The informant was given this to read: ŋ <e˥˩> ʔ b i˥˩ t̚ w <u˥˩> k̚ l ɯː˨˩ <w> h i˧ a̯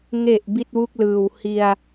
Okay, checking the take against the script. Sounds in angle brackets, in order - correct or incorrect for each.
incorrect: e˨˩, correct, correct

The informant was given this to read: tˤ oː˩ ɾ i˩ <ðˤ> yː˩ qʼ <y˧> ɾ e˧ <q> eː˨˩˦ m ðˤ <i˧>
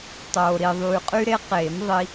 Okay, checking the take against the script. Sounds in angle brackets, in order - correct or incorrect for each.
correct, correct, correct, correct

